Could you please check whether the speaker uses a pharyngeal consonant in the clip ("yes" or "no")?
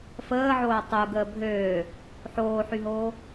yes